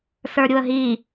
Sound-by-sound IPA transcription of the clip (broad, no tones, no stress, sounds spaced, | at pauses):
s ə˞ ɾʲ u ə̯ ɦ i